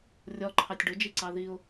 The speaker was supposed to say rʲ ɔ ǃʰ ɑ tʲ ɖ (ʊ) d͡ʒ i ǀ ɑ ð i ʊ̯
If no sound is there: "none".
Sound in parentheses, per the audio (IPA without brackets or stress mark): ʊ